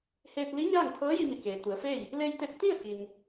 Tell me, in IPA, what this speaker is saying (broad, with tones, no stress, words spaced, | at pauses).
heː˧t̚li˧˥ ɲaː˥˨ŋt̪ʰɤː˧˥ji˧mi˩ keː˩t̪u˩˧ə̯feː˥˨j | le˧j t̪e˧p̚t̪i˥˨ə̯ ki˩n